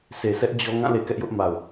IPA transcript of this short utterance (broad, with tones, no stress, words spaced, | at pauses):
se˨sɛ˦ʔ d͡ʑɔ˦ ŋã˦˨le˨ kɛ˦ʔjʊ˦ʔ ma˨ʊ̯